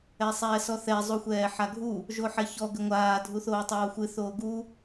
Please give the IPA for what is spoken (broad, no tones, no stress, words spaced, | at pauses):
ɛsˤɛːsɔθɛ zˤuxʷɛːħaɡʱu | ʒoħɛçɔ ɡɘŋʷaː dʱuθoːtˤoːxʷɨ θoːɡu